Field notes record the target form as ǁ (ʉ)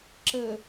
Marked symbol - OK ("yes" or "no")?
no